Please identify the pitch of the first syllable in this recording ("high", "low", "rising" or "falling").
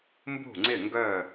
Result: falling